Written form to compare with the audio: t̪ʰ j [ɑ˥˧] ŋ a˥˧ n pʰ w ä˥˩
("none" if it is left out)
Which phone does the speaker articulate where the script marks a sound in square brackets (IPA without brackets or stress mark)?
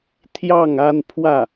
ɑ˥˧